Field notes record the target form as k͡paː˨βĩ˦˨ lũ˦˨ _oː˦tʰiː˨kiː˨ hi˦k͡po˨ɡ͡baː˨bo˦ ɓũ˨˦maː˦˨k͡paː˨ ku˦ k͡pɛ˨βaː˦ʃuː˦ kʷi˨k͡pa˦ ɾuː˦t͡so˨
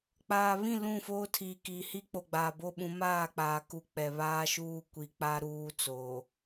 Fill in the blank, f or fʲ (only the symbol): f